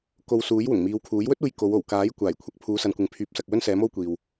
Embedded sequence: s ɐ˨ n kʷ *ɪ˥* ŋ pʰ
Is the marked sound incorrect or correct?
incorrect